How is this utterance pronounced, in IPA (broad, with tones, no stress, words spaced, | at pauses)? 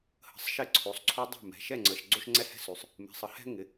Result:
hə̤˩˧˩sˤʃɪ˧˩˧ ǀʰo˩˧˩sˤǀʰo˦dˤɛ̤˥˩mɛ̤˩˧˩ ʃɛ˥˩ŋ͡ǀə˩˧˩ʃ ɡ͡ǀo˦ʃŋ͡ǀɛ˦hɛ̤˦sʉ˩˥sˤ | mɛ̤˩˧˩sˤə˩˥hɛ̤˦ ŋɪ˩˧˩